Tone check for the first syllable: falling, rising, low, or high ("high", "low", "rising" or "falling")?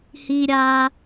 low